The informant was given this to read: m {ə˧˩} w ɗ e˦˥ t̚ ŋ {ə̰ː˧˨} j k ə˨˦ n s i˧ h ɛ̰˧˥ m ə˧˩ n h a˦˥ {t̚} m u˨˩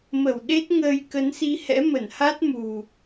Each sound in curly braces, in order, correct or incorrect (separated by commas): correct, incorrect, correct